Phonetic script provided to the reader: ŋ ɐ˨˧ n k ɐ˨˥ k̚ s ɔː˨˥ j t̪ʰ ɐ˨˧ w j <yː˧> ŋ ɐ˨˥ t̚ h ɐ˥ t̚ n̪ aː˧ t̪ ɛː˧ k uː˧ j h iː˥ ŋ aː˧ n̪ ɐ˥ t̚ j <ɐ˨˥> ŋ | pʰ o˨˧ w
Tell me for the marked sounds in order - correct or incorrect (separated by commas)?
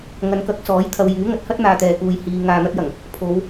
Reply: incorrect, incorrect